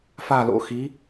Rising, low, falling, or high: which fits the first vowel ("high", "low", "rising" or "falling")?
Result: falling